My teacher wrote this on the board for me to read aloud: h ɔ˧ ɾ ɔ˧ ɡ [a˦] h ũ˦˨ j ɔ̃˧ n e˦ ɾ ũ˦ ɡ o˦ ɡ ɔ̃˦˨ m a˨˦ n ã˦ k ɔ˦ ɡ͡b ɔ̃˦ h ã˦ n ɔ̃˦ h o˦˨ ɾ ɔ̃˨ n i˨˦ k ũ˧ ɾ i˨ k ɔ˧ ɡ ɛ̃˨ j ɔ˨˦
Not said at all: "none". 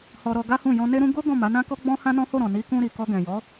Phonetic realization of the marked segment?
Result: a˦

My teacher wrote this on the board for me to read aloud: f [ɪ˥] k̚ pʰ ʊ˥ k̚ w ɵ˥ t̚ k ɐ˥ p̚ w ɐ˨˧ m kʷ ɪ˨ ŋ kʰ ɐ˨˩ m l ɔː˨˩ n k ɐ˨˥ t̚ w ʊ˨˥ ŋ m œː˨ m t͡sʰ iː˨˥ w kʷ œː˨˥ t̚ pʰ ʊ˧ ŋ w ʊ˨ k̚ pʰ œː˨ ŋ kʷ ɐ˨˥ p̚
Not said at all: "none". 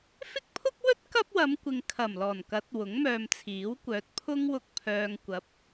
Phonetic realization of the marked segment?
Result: ɪ˥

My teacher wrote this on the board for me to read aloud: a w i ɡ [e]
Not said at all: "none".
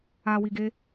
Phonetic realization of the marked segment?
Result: e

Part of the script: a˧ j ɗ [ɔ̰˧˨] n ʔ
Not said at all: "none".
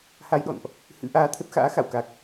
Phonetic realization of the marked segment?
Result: ɔ̰˧˨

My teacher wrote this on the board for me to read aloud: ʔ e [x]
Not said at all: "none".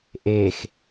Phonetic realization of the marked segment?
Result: x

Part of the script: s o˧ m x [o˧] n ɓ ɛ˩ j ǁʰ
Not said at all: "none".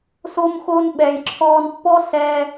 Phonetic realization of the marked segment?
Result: oː˧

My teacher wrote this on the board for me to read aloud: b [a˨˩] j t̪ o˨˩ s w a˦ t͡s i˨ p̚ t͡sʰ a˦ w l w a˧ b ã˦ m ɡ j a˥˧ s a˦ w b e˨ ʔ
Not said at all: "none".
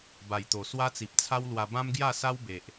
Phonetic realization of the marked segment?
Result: a˨˩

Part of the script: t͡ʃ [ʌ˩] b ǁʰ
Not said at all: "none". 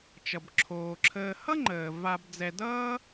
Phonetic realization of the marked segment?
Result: ʌ˩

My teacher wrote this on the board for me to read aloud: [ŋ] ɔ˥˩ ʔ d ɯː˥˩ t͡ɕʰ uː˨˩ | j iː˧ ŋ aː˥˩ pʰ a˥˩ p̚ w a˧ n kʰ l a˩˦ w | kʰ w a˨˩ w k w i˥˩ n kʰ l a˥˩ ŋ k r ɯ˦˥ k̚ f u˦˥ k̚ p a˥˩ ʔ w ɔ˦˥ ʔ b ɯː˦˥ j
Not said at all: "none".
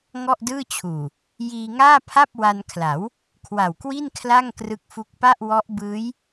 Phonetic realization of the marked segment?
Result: ŋ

